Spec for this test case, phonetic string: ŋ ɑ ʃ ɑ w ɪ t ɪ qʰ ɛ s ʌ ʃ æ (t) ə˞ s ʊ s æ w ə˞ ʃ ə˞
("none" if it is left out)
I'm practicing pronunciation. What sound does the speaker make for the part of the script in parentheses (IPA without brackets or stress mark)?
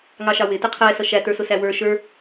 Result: t